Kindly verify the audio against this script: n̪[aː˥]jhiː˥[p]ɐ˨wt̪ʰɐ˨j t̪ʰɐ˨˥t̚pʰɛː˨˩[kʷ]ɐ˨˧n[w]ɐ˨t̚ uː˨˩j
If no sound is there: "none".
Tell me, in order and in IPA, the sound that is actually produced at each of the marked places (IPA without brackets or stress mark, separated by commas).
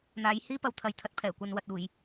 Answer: aː˨˥, p, kʷ, w